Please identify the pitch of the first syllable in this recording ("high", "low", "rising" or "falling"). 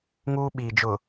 high